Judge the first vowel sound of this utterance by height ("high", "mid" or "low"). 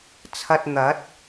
low